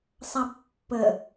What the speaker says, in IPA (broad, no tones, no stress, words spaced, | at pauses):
sˤabpːə